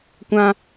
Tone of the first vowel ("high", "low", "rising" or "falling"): high